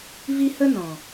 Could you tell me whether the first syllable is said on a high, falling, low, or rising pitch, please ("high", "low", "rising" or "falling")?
high